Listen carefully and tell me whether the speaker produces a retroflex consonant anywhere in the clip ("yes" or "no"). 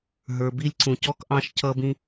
no